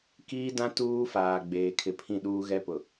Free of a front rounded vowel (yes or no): yes